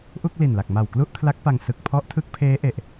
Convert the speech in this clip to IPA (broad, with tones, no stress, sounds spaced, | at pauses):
ʔ u˥˩ k̚ l i˨˩ n l a˨˩ k̚ m a˨˩ w k l u˥˩ ʔ kʰ l a˦˥ k̚ p a˧ ŋ s ɯ˨˩ k̚ pʰ ɔ˦˥ ʔ tʰ ɯ˦˥ k̚ pʰ eː˦˥ ʔ e˨˩ ʔ